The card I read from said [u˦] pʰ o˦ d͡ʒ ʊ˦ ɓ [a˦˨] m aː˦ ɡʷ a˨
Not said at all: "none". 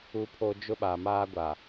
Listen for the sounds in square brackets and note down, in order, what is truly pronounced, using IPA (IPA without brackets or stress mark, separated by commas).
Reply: u˦, a˨